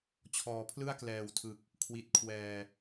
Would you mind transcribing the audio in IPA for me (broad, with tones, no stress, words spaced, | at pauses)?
t͡ɕʰɔː˩˦pʰlɯ˥˩a̯ klɛː˨˩wtʰɯ˨˩k̚ | kʰwi˨˩t̚kʰwɛː˨˩